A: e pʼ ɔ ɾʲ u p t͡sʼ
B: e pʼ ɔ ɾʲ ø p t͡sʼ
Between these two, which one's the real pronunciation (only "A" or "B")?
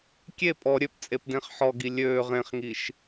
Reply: B